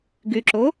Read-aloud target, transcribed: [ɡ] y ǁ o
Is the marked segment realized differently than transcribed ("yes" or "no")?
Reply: no